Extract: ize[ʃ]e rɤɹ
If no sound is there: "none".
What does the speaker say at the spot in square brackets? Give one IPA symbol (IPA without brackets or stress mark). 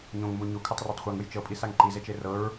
t͡ʃ